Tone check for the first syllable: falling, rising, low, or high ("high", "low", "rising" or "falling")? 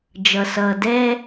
low